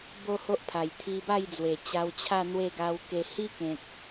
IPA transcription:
b o˥˧ h o˦ ʔ pʰ a˨˩ j t̪ʰ i˧ b a˥˧ j d͡z w e˨˩ t͡ɕ a˧ w t͡ɕʰ a˥˧ n̪ w e˥˧ ɡ a˧ w k e˧ h i˦ k ẽ˨ k̚

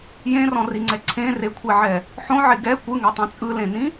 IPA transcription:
j ẽ r ɔ̃ r i ŋ͡ǀ ɛ ǀʰ ẽ r e kʷʰ e ʕ ɛ | ħ õ ʕ e ɡ ɛ kʷ ɯ ŋ ɛ tˤ ẽ t͡sʼ ɯ l ẽ n ĩ

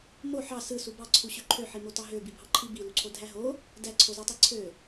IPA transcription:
m o ħ ɑ s ɯ s u b ɑ ǀʰ u ɕ ø ǃʰ ø ħ i m o t ɑ ɦ ø b i bʱ ɑ ǃʰ i b i l u ǀʰ o dʱ æ ɦ o | d æ ǀʰ o z ɑ tˤ i ǀʰ ø

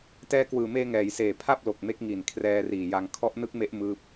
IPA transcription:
t ɛː˧ k w ɯː˨˩ m eː˧ ŋ ɛː˩˦ j s eː˨˩ pʰ a˥˩ p̚ l o˨˩ k̚ m e˦˥ k̚ ŋ i˨˩ n kʰ r ɛː˧ r iː˨˩ j a˧ ŋ kʰ ɔ˦˥ ʔ n ɯ˦˥ k̚ m e˦˥ ʔ m ɯː˥˩ p̚

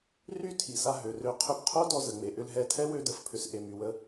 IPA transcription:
r y˦˨ tʰ i˨ s a˧ ɦ ø˨ r ø˧ qʰ ʏ˦ b qʰ o˦ d ɔ˧ z ə˨ ŋ͡m e˨ ʔ ʏ˧ l ɦ ɛ˧ tʰ ɛ˦ w ø˦ d ə˧ f pʰ ʏ˧ s ʔ e˧ m y˧ w ə˦

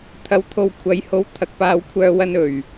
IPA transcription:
t̪ʰ ɐ˨ w t̪ʰ o˨ w kʷʰ ɐ˨˥ j h o˧ w t̪ʰ ɐ˨˥ k̚ p aː˨˧ w kʷʰ œː˧ w ɐ˧ n ɵ˨˩ ɥ

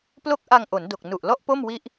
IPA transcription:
p l o˥˩ k̚ ʔ a˧ ŋ ʔ o˩˦ n d o˨˩ k̚ n u˨˩ ʔ l ɔ˥˩ ʔ p o˥˩ m w i˦˥ ʔ

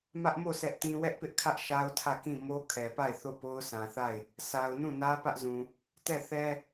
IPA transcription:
m ä˦ ʔ m o˦˨ s ɛ˦ ʔ t ĩ˦ w ɛ˦ ʔ p ɪ˦ ʔ kʰ ä˦ ʔ ʃ a˦ ʊ̯ tʰ ä˦˨ k ĩ˦˨ m o˦ kʰ ɛ˨ p a˦˨ ɪ̯ θ o˦˨ p o˦ ʊ̯ sʰ ã˨ θ a˦˨ ɪ̯ | s a˨ ʊ̯ n ũ˦˨ n ä˦ p ä˦ ʔ z ũ˨ | t ɛ˦˨ θ ɛ˦

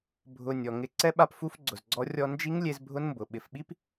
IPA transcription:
bʱ ʊ˨ nʲ ɔ˨ ŋ ɪ˦˨ ǀ ɛ˦ ɓ a˧ p f u˦ f ɡ͡ǀ ʊ˨ z ɡ͡ǀ ɔ˦ rʲ ɔ˧ n d͡ʒ i˦ ŋ lʲ e˧ z bʱ ʊ˦ n m b ʊ˨ ɓ ɪ˨ f ɓ i˦ p

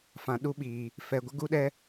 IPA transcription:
f ã˨ ɗ u˦ ɓ iː˨ | f ɛ˨ ɡʷ ɪ˦ ɡ u˦ ɗ ɛ˦

